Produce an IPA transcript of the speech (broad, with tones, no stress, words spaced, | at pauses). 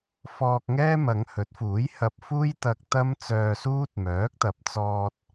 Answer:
fɔː˧k̚ŋɛː˥ mɐ˨˧ŋhɵ˨˥t̚fuː˨˥j hɐ˧p̚fuː˥jt̪ɐ˧k̚ t̪ɐ˥mt͡sœː˧suː˥t̚ mœː˨˥k̚t̪ɐ˨p̚t͡sɔː˧t̚